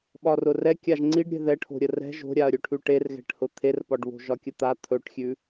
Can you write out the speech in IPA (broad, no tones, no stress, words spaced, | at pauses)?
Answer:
ɓɒrʊrɛkʲaʒ ŋ͡ǀiɖɾʲɛ̤ ðɛʈʰo̤ ɾʲərɛ̤ ʒo̤ɾʲaɐ̯ɾʲɵʈʰʉ ʈerɣɛ̤ʈhʊ t̪ʰerpɒɖβo̤ ʒɒkʲət̪a t̪ʰɵʈxʲʉ